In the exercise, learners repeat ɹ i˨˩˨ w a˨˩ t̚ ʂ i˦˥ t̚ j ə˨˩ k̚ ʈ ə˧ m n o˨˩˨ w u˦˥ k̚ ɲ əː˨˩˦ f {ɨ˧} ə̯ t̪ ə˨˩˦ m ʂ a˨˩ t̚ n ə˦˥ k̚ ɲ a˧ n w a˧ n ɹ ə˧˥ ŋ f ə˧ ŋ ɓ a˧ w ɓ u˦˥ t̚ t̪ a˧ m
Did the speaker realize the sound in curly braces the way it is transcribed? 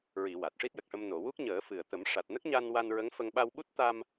no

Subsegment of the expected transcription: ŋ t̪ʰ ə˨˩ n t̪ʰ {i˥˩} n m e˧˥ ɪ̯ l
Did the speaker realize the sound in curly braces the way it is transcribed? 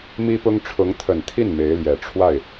yes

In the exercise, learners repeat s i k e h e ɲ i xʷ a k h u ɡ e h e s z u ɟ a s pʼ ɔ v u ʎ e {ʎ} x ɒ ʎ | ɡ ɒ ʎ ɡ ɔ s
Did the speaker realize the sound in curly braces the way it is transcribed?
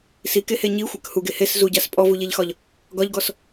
yes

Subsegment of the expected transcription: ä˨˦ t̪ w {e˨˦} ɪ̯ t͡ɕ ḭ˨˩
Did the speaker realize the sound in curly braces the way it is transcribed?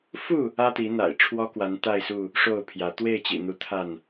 no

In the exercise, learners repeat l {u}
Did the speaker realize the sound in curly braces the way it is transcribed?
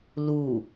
yes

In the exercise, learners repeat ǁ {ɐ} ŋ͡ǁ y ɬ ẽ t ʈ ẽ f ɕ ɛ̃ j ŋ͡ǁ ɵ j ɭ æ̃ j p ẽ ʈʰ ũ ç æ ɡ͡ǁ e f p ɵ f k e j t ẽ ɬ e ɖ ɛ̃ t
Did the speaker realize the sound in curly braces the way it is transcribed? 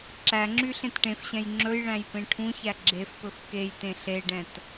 no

